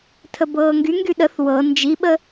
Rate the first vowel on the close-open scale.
mid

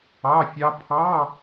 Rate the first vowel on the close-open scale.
open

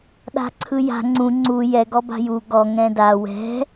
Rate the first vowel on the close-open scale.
open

